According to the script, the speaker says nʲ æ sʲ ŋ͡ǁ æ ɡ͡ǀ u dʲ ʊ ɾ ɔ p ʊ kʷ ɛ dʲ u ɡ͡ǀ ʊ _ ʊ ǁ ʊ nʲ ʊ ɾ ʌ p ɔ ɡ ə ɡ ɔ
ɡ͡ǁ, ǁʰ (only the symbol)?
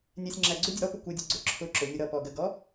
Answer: ǁʰ